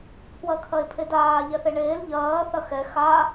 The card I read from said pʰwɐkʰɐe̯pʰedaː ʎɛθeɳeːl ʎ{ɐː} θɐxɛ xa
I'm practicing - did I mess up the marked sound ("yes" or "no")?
no